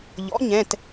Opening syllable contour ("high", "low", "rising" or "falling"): rising